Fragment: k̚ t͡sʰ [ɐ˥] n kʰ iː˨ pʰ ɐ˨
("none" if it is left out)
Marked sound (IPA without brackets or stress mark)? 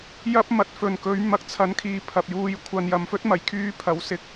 ɐ˨˧